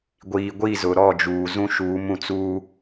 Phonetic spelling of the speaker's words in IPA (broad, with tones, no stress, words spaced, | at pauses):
ɡʷiː˨ ɡʷi˦˨zʊ˨ɾɔ˦˨d͡ʒuː˨ zũ˦ʃuː˨˦m ũ˨t͡suː˦